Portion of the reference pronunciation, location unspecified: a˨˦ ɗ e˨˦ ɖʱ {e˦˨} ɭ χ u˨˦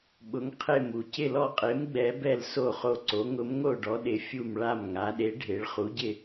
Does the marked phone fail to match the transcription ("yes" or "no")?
yes